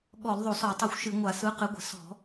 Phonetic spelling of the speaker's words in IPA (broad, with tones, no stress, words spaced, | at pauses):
ɠɔ˧˩˧lðˤo˧˩˧sɔ˧˩˧tˤɨ˧˩xʷ ʃɨ˧˩˧ ŋʷa˧˩˧sɯ˨˥ qɨ˨˥ɡʷə̤˧˩˧ sɔ̤˧˩˧